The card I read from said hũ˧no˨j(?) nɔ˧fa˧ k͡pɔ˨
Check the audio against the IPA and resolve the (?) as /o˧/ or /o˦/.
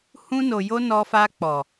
o˧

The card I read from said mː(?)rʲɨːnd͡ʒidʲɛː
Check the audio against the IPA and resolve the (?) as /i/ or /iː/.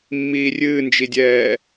iː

